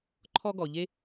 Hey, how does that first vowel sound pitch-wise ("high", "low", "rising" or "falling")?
high